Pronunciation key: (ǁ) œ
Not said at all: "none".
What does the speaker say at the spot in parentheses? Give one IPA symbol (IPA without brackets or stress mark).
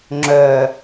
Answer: ŋ͡ǁ